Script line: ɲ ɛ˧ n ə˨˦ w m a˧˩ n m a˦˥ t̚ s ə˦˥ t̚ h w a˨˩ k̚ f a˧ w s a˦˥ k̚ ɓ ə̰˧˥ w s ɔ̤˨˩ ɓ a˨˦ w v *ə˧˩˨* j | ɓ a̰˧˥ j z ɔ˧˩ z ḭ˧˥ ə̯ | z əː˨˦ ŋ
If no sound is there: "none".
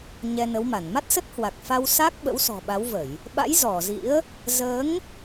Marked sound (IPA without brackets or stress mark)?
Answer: ə˧˩˨